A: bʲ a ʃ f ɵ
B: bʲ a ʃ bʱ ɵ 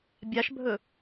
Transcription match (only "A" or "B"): B